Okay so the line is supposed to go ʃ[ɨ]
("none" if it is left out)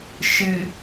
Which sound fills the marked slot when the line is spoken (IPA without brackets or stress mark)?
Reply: ɨ